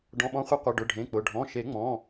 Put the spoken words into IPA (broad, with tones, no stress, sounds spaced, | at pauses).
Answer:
ɖ ɔ̃˩˧˩ ɓ ɔ̃˨˦ χʷ i˨˦ qʷ ɪ˩˧˩ ɖ ʊ˩˧˩ ɖʱ ẽ˩˧˩ k͡p ʊ˩˧˩ ɖʱ ɔ̃˩˧˩ ʃ e˨˩˦ ŋ͡m ɔ̃˩˧˩